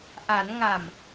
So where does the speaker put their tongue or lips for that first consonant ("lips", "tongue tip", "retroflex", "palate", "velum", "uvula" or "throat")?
throat